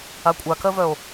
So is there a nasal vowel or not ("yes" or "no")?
no